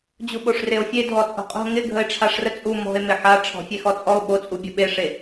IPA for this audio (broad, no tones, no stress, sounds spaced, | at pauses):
d͡ʑ u ɓ o ʂ r e o̯ fʲ e dʱ ɔ t͡sʼ o̤ qʼ o̤ ŋ ɪ ɡʱ ə e̯ ʈ͡ʂʰ a ʂ r ə t͡sʼ u m ɔ̤ e̯ m ɪ ħ a ʈ͡ʂʰ ɔ̤ fʲ e x ɔ t͡sʼ ɔ o̯ ɓ o t͡sʼ u bʲ ə ɓ e ʂ e